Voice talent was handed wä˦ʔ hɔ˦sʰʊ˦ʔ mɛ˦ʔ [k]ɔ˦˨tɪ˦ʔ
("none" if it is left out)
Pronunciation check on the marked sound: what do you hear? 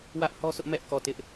k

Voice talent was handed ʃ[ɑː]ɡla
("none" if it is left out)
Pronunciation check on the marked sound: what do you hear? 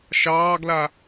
ɑː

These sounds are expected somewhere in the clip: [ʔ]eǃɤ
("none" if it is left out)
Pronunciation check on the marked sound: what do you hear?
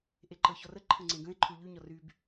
ʔ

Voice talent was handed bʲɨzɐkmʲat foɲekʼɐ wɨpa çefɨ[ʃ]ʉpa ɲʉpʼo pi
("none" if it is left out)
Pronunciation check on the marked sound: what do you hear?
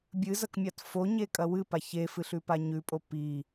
ɬ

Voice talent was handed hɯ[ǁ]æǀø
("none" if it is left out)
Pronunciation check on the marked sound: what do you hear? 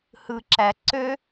ǁ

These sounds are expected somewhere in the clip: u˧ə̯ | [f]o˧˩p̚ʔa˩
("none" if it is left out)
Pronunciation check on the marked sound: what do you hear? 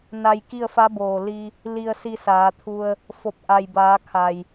f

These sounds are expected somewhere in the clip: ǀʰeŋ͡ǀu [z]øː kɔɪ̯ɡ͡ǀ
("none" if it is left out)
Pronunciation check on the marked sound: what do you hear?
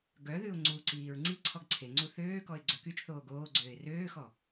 θ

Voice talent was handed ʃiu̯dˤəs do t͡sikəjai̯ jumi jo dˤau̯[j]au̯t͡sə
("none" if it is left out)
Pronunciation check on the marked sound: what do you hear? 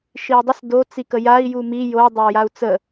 j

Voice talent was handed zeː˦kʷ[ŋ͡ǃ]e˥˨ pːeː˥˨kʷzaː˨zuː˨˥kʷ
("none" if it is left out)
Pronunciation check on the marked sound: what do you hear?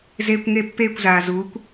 ŋ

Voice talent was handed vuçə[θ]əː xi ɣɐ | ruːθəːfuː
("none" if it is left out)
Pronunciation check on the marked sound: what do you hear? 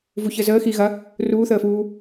z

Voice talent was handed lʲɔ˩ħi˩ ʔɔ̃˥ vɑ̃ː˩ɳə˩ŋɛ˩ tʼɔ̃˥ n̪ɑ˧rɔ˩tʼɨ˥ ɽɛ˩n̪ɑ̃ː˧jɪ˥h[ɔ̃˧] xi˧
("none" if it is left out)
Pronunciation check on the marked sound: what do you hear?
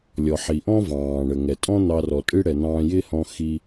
ɔ̃˧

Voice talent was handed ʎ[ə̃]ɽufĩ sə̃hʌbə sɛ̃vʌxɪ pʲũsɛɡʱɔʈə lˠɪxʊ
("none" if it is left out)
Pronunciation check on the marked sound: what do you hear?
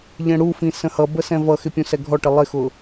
ɛ̃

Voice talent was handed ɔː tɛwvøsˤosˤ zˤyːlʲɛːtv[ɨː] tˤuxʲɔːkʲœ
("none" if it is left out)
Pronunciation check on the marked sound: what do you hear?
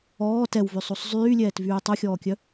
yː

